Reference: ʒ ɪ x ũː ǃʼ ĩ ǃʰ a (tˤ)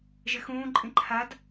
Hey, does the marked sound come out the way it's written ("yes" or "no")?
no